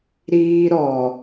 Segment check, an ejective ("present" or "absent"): absent